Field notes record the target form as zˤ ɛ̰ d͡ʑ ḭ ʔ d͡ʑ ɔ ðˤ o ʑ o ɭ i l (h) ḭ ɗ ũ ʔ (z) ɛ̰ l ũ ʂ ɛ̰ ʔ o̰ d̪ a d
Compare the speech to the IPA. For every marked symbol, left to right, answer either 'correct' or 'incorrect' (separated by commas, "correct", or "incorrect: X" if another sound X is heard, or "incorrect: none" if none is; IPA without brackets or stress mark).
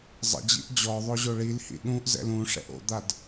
correct, correct